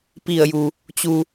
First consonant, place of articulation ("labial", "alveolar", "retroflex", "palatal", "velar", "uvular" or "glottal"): labial